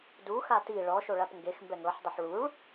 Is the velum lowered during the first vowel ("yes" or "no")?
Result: no